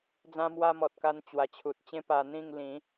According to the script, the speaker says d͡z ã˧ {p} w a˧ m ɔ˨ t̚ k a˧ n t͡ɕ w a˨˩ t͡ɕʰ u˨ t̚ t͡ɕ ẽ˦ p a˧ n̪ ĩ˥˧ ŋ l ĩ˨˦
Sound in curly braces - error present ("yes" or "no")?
yes